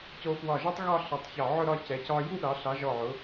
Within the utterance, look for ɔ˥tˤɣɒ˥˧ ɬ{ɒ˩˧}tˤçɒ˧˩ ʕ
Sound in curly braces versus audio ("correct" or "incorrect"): incorrect